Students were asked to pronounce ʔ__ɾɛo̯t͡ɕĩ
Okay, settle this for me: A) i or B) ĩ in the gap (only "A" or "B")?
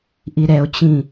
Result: A